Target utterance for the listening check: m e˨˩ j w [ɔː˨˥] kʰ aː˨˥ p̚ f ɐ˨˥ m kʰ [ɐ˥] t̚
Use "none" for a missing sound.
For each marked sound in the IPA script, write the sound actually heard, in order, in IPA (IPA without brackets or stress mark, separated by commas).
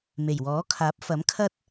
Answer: ɔː˨˥, ɐ˥